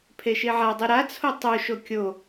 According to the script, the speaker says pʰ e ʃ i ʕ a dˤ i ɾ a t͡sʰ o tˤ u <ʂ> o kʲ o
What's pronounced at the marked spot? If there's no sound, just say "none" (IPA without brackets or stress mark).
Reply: ʃ